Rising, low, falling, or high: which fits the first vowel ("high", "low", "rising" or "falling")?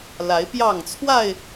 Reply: rising